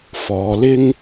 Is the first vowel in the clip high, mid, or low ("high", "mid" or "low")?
mid